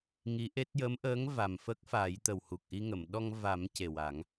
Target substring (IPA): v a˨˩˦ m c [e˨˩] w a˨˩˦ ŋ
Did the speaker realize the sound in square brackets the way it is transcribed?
yes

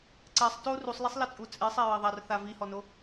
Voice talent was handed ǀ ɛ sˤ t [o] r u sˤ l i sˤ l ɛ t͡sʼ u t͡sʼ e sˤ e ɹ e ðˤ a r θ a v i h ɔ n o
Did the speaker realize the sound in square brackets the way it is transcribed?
yes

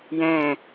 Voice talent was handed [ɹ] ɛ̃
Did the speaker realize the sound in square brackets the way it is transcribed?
no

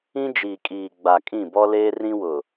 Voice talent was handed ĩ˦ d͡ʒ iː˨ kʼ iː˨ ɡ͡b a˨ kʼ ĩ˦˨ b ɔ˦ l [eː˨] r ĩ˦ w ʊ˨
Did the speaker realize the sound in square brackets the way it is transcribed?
no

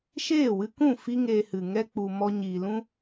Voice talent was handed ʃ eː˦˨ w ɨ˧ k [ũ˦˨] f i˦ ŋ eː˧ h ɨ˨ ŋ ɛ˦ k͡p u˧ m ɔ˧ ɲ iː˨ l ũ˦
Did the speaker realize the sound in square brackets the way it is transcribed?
yes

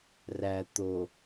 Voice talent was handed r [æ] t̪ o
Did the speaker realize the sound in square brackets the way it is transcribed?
yes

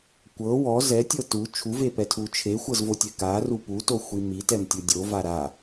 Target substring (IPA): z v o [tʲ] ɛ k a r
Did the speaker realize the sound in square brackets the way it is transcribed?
yes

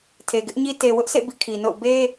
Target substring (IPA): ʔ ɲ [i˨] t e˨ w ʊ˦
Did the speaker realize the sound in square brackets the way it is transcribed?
no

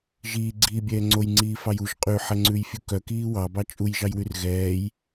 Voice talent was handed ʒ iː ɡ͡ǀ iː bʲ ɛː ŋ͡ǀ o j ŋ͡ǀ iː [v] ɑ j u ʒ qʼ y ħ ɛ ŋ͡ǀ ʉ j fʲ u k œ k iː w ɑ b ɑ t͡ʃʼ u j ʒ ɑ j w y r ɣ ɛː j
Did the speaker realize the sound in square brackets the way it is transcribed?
no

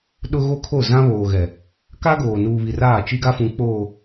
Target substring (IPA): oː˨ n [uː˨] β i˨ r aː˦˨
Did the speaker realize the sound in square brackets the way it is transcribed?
yes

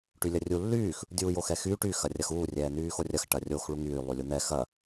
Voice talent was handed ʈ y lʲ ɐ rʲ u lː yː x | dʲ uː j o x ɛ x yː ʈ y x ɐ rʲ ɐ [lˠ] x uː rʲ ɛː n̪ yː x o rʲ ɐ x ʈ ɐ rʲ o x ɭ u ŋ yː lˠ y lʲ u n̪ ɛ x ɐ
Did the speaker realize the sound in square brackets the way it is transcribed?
no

